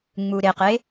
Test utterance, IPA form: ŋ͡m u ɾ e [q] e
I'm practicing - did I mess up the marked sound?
no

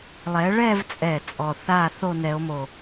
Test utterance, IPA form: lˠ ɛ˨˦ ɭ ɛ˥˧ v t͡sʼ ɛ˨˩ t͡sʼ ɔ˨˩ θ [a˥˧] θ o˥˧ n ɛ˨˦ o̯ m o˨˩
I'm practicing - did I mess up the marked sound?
no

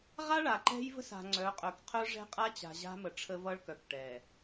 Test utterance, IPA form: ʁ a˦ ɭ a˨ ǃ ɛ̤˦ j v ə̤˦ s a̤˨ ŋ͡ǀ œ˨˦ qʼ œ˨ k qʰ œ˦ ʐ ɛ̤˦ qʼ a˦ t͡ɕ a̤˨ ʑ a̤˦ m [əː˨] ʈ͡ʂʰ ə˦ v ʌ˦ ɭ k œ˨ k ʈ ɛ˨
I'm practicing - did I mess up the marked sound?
yes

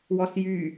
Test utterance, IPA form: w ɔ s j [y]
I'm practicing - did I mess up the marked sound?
no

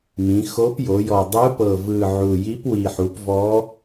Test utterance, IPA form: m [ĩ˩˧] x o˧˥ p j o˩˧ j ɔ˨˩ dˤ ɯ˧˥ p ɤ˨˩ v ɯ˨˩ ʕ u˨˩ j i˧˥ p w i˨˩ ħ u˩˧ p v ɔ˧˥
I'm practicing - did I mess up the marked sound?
no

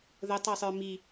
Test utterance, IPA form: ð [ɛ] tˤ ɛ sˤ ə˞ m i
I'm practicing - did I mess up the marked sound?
yes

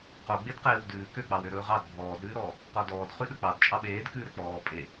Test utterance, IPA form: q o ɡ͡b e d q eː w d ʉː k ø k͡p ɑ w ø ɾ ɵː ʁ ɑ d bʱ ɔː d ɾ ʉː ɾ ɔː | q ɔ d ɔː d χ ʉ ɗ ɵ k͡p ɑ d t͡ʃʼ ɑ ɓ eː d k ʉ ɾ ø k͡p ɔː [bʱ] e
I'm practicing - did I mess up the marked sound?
yes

